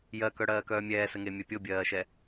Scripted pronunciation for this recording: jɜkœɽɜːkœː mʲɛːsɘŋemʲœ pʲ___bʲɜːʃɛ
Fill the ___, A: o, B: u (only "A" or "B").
A